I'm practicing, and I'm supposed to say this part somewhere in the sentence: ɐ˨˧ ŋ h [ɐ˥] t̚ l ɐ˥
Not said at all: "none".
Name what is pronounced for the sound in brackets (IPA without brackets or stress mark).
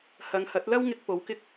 ɐ˨˥